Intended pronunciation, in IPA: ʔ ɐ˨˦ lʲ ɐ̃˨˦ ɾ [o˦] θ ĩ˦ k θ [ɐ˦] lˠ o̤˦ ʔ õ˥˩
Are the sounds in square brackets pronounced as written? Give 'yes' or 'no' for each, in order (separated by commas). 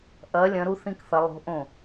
no, no